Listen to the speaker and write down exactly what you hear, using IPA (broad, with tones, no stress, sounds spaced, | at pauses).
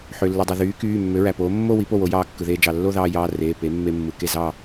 ħ ø˩ lː ɯ˩ dˤ u˩ ð yː˩˥ k yː˩˧˩ mː ø˩˥ ɹ æ˩ p oː˩˥ mː o˥˧ w i˩˥ p o˥˩ w o˩˥ j ɑː˧ kː ɯ˩ ð eː˧ d͡ʒ ɑ˩ lː o˥˧ ð ɑː˧ j ɑː˩˧˩ r eː˩˧˩ p e˩˥ mː e˧ mː ɯ˩ k e˥˩ z ɑ˥˩